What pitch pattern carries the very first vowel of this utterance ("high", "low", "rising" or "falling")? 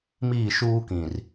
falling